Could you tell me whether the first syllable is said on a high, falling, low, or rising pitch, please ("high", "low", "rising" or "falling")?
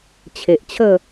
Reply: low